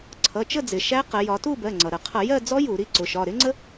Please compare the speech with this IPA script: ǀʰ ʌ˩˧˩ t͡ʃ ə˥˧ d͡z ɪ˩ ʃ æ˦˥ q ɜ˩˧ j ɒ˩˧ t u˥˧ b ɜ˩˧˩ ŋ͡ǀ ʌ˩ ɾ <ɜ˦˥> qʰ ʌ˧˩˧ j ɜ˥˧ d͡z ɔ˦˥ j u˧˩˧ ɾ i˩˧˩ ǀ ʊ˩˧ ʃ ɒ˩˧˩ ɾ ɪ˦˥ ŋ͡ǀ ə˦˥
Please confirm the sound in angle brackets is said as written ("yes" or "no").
no